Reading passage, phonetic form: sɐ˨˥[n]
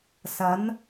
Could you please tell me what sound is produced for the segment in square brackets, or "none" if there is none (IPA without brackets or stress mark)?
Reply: n